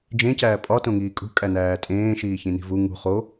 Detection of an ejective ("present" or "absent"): present